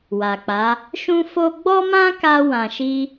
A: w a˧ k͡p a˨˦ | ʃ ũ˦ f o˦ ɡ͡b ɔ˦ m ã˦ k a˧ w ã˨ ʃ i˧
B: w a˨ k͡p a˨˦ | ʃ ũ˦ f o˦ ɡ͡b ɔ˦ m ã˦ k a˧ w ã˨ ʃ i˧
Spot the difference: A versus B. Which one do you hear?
B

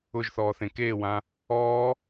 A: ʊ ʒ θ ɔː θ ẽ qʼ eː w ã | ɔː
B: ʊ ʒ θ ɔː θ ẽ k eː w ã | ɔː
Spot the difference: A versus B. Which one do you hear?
B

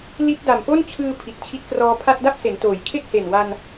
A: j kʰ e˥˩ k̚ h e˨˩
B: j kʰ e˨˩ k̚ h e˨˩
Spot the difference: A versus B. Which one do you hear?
A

